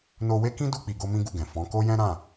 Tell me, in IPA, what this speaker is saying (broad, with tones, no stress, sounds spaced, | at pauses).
n o˧ w e˦ k ĩ˦ d u˧ k͡p i˨ ɡ o˧ m ĩ˦ ɡ u˦˨ ɡ ɛ̃˨ f ɔ̃˨˦ k o˦ j ɛ̃˦ ɾ ã˦˨